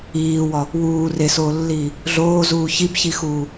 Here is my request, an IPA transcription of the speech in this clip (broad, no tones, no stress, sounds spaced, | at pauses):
iː w ɒ | w uː r e s oː lː iː | ɮ oː z uː ç i b ç i x uː